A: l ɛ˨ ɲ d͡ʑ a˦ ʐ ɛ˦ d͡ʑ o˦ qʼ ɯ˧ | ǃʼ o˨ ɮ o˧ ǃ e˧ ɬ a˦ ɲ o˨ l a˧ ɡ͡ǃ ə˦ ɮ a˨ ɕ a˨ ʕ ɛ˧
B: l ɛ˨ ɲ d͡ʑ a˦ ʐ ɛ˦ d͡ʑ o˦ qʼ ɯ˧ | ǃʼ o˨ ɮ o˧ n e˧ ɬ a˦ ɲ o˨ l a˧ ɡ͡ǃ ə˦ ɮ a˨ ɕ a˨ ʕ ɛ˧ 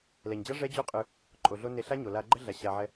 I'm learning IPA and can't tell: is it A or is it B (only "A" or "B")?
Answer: B